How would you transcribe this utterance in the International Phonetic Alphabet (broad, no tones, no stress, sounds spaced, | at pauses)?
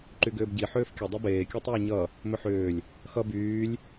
ǃ y ɡ ʏː b ɟ i ħ ʏː f kʲ ə dˤ ʌ b eː kʲ ə˞ tˤ ʏː ɲ ʌ | m ʏ ħ ʏː lʲ | x ʌ b yː lʲ